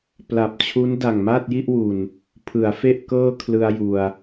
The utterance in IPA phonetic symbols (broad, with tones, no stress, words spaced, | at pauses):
pla˨˩p̚t͡ɕʰu˦˥n da˨˩ŋmaː˥˩t̚ji˥˩ʔwu˨˩n | pʰɯ˩˦a̯fe˥˩ʔ kɤː˥˩kʰlɯ˧a̯ ju˨˩a̯